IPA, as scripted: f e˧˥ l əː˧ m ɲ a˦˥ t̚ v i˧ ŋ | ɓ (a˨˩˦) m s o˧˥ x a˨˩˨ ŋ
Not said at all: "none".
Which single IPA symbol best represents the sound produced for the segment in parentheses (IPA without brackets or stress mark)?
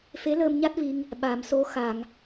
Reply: a˨˩˦